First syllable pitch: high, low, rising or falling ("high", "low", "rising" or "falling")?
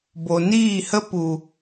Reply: low